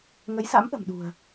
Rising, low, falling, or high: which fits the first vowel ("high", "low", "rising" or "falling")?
rising